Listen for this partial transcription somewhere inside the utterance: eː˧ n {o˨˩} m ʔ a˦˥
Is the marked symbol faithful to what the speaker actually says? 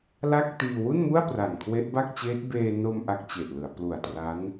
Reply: no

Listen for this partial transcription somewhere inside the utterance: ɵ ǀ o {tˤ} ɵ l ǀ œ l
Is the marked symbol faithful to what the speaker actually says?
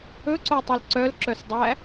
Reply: yes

